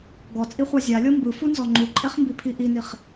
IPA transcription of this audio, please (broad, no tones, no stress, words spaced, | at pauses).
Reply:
ɡɔt͡sʼiχʷa zʲalʲɤ mbɯfunzɔ ŋ͡ǃuǃʼeχmbipʰi ʔiniχ